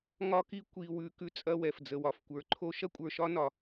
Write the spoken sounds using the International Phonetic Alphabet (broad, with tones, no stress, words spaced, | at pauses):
ŋɒ˦ki˦ kʷi˨wʉ˨ kʉ˦t͡sʼɐ˦wɛ˨f d͡zə˨wɒ˨fkʷə˞˨ǃʰo˦ ʃɐ˦kʷʼə˞˨ʃɒ˦nɒ˨